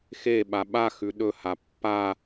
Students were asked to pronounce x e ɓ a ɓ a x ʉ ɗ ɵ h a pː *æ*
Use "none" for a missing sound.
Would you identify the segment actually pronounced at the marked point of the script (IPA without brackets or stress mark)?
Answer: a